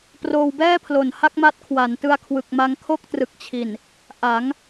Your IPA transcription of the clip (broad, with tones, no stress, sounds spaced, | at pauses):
p r oː˧ w b ɛː˥˩ pʰ l o˨˩ n h a˥˩ k̚ m a˦˥ t̚ kʰ w a˩˦ n t ɯ˧ a̯ kʰ w ɯ˨˩ k̚ m a˧ ŋ kʰ o˥˩ k̚ t r ɯ˨˩ k̚ t͡ɕʰ i˨˩ n | ʔ a˩˦ ŋ